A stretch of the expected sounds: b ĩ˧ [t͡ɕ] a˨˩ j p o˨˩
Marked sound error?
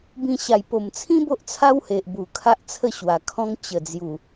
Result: yes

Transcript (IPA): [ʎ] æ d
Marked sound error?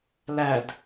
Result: yes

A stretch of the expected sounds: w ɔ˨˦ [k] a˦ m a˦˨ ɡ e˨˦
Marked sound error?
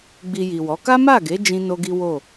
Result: no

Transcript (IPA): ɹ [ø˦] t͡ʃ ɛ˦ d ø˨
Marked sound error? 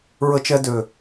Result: yes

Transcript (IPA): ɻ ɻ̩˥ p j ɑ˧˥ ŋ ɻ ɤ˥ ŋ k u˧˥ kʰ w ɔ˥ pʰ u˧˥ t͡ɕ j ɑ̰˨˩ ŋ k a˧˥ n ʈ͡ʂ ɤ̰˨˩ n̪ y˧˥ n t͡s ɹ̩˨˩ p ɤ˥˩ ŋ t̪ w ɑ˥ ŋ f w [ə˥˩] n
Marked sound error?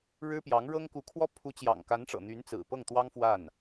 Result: yes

